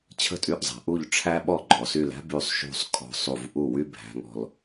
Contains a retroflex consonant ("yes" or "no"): yes